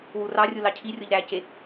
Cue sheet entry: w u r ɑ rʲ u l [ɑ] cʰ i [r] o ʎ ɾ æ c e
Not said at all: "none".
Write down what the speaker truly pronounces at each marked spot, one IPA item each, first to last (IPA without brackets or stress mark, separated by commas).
ɑ, rʲ